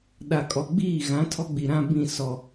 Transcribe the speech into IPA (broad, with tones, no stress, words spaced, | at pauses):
ɗa˨kʼɔ˨ɡ͡biː˦˨ ɣã˨˦ tʰɔ˦ɡ͡bi˨ɾã˦ bĩ˦˨ sɔ˨